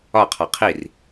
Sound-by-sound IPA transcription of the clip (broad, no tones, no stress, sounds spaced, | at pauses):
ɒ qʰ ɒ qʰ i r